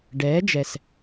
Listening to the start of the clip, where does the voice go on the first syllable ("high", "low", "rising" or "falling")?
rising